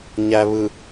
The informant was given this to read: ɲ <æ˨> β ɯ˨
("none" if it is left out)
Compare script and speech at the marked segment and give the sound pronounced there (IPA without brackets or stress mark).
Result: æ˨